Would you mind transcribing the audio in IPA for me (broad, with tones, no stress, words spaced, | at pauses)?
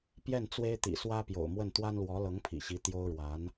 pjɛ˥˩n t͡swe˥ɪ̯t̪ḭ˨˩ swä˥pjo̰˨˩ʊ̯mwə˥˩n t̪wa˥nlwɔ˧˥ lɤ˧˥ŋpʰḭ˨˩ɕi˧˥ t̪jo˥ʊ̯ɻwa˧˥n